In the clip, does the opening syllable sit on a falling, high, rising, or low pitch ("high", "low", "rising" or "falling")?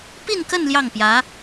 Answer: falling